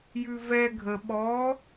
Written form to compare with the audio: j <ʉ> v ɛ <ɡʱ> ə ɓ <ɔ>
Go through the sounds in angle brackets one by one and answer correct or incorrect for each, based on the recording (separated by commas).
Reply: correct, correct, correct